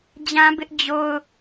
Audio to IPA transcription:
d͡ʑ ã˦ b ɪ˦ ʔ d͡ʑ o˦ ʊ̯

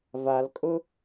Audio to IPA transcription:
v a l kʼ ʊ

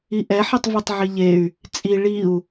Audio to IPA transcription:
i ʔ ɛ ħ i tˤ v i tˤ ʕ i ʎ e y̯ | t͡sʼ i ɭ i u̯

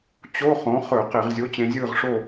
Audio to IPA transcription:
t͡ɕ o˧˥˧ χ õ˩˥ χ ɵ˧˩˧ q e˧˩˧ ʁ zʲ o˧˥˧ t͡ɕ ẽ˧ zʲ ɯː˥˨ ʁ ʂ o˥˨

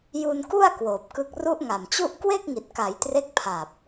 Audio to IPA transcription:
j u˧ n k u˥˩ a̯ k w oː˨˩ p̚ k ɯ˥˩ k̚ r u˦˥ ʔ ŋ a˨˩ m t͡ɕ u˥˩ ʔ k w e˥˩ k̚ ŋ i˨˩ t̚ k a˩˦ j t r e˦˥ k̚ pʰ a˨˩ p̚

